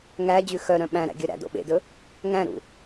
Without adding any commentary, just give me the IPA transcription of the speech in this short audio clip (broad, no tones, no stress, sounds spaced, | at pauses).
ŋ æ d͡ʑ ʉ x œ ɾ œ̃ ɓ æ̃ ɾ æ̰ ɡʲ œ ɾ æ̰ d o̰ ɓ ḛ d ɵ | ŋ æ̃ ɾ ṵ